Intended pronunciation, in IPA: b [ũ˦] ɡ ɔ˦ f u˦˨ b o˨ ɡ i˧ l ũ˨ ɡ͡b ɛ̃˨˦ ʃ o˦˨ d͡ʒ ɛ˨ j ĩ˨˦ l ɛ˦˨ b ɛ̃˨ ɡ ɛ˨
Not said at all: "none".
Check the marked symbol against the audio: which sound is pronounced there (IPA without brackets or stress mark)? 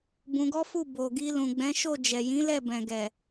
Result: ũ˧